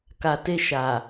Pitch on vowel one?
low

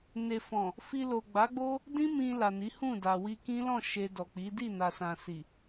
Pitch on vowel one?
low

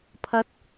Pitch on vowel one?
high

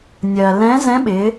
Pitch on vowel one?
low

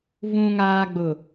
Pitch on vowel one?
low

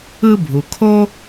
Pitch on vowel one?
high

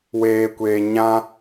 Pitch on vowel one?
low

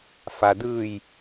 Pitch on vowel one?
low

